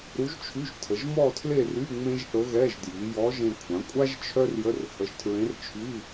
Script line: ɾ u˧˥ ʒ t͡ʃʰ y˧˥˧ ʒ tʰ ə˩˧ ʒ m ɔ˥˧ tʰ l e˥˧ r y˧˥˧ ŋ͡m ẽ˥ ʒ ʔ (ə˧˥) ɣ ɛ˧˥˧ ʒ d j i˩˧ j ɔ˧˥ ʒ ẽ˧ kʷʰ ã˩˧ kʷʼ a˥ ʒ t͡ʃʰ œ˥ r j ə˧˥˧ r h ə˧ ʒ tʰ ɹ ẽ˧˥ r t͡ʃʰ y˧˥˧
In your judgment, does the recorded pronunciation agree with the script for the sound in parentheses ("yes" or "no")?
yes